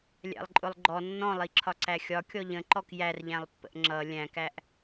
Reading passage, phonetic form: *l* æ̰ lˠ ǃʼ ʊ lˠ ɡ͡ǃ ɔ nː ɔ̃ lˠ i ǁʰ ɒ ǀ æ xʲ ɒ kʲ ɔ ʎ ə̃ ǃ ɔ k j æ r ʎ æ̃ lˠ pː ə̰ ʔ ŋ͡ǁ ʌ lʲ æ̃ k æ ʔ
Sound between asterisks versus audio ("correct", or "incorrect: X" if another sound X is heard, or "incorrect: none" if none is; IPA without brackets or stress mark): incorrect: lʲ